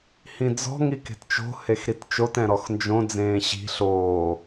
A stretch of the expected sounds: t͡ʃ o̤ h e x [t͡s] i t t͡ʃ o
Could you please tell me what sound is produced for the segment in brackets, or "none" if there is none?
ɾ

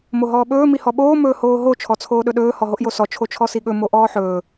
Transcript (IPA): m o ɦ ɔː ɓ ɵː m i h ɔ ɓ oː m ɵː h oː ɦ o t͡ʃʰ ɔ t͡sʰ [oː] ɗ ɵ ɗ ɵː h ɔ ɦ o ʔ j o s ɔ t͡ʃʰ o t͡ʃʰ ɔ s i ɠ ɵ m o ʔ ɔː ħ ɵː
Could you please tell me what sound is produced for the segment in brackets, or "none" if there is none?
oː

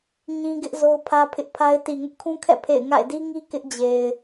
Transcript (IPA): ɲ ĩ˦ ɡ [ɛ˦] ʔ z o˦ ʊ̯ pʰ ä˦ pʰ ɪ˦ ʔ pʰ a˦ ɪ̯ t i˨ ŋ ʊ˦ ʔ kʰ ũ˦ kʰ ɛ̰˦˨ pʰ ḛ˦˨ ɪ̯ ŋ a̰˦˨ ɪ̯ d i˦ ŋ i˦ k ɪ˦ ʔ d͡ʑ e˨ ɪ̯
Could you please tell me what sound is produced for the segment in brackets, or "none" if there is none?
ɪ˦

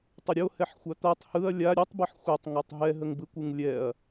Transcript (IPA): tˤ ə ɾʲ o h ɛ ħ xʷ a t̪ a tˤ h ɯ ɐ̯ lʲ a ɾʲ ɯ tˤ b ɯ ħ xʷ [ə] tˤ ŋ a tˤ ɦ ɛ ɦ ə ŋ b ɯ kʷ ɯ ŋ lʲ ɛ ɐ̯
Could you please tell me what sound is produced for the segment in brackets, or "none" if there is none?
ɛ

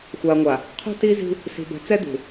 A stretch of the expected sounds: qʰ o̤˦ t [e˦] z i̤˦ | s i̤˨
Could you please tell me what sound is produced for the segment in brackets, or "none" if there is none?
i˦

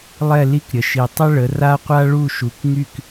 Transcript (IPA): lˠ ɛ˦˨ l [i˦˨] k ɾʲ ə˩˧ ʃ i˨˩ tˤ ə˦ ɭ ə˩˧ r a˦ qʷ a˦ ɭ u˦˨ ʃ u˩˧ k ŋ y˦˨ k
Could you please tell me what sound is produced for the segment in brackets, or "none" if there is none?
i˦˨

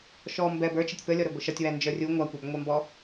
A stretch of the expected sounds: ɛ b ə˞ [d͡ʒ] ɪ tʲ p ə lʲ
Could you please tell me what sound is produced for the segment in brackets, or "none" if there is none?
t͡ʃ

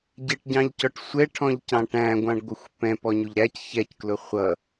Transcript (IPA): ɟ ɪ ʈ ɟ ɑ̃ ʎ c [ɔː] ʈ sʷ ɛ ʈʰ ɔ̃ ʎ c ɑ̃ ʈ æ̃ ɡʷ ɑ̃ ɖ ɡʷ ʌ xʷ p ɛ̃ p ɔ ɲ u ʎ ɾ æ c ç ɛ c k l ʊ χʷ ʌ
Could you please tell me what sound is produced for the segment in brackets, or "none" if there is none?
ɔ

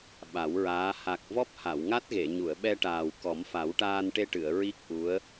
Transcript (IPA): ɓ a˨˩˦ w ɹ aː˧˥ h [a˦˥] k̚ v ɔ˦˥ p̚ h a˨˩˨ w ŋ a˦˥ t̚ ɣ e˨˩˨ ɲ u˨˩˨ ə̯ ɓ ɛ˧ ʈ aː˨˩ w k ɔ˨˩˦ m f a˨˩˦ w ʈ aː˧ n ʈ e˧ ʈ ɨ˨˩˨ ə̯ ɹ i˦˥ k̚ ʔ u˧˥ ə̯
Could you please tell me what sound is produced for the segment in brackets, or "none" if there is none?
a˨˩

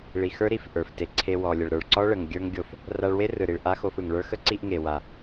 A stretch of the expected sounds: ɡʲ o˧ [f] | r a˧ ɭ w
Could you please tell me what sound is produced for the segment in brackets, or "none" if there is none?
f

